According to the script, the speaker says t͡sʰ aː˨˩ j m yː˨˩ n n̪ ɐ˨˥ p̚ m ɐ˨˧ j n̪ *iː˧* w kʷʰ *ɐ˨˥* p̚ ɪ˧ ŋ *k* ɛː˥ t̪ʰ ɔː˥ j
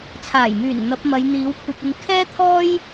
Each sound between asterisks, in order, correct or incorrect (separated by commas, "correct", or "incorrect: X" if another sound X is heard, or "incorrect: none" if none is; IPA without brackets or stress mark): incorrect: iː˨˥, incorrect: ɐ˧, incorrect: kʰ